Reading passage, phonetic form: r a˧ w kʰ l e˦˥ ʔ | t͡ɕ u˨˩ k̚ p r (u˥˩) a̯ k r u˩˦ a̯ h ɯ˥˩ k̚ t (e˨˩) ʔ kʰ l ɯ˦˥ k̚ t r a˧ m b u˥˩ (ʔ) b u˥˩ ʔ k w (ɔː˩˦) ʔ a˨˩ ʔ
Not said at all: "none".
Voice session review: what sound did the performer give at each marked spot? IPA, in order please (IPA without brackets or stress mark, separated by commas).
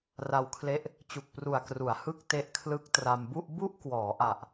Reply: u˨˩, e˦˥, ʔ, ɔː˩˦